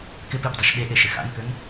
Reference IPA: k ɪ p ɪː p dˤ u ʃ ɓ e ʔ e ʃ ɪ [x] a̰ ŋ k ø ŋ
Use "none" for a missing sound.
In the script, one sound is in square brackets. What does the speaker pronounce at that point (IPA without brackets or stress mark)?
x